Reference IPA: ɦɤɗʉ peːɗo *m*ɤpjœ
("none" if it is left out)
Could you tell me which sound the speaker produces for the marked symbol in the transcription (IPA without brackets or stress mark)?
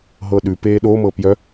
m